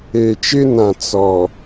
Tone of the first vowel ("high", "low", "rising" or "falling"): low